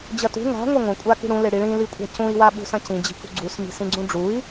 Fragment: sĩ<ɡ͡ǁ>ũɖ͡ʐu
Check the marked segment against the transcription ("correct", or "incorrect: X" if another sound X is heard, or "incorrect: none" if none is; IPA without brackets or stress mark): incorrect: ɡ͡ǀ